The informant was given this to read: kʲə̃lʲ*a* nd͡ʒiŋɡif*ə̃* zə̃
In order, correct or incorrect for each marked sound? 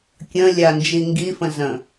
correct, correct

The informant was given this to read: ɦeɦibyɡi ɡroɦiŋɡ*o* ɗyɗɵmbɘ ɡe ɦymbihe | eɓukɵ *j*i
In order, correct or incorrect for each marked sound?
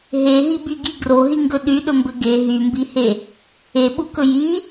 incorrect: ɵ, correct

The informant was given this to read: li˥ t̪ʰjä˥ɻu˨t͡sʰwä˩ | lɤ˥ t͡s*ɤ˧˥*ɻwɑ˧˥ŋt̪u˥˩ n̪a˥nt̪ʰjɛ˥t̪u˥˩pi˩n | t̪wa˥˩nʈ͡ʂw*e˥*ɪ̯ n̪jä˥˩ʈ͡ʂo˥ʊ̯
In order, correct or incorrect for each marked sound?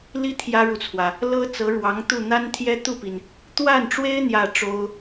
correct, correct

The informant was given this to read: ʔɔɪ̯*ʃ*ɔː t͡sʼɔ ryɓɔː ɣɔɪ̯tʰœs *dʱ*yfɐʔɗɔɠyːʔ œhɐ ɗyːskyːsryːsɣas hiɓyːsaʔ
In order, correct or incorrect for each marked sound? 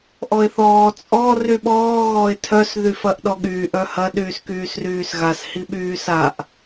incorrect: θ, incorrect: ð

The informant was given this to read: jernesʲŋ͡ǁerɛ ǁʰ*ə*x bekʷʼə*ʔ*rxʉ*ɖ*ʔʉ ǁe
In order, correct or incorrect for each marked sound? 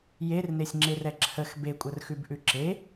correct, incorrect: none, incorrect: b

